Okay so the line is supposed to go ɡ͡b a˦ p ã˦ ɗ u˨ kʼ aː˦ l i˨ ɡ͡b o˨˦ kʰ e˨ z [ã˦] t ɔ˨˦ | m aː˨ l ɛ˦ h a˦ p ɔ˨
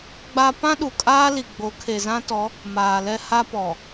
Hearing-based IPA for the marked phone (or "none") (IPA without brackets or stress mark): ã˦